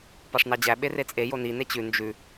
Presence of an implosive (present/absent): present